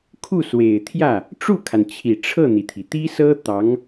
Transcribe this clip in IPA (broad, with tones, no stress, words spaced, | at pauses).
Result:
kʰu˥˩swe˨˩ɪ̯t̪ʰjä˥˩ | ʈ͡ʂu˥˩kʰa˩nt͡ɕʰi˨˩ ʈ͡ʂʰɤ˥˩n̪i˩t̪ʰi˩ t̪i˥sɤ˥ t̪ɑ˧˥ŋ